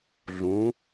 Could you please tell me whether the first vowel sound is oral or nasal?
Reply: nasal